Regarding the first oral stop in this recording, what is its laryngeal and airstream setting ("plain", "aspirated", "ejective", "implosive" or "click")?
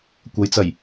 plain